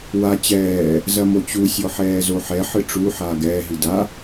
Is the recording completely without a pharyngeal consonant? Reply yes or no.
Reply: no